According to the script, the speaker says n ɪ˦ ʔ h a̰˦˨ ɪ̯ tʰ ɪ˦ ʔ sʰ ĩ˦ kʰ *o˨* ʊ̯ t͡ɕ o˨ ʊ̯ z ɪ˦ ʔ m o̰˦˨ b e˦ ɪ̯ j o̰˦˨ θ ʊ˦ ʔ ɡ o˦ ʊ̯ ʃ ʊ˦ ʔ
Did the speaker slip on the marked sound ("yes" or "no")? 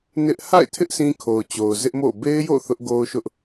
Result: no